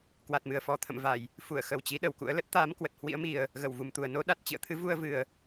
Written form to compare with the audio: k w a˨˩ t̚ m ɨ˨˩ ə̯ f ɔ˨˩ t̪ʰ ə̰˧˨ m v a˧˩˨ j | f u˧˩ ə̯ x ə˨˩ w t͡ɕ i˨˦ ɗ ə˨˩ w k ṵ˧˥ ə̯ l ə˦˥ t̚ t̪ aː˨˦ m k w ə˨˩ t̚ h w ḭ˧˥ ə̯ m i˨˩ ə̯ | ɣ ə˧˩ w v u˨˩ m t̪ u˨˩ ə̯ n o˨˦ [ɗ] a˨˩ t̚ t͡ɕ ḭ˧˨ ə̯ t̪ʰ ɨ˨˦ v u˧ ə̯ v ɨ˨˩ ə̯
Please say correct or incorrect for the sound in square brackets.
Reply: correct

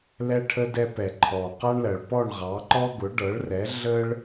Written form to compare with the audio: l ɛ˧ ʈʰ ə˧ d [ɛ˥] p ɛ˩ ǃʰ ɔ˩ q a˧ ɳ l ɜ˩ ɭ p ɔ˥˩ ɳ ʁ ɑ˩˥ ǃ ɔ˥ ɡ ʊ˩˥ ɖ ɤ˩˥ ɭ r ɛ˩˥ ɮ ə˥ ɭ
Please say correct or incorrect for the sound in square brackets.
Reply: incorrect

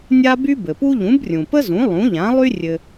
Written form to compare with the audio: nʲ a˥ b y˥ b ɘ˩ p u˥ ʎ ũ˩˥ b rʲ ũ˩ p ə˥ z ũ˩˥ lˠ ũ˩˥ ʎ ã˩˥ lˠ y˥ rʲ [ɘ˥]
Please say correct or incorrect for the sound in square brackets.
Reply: incorrect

